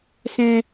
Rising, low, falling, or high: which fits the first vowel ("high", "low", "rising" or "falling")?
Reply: low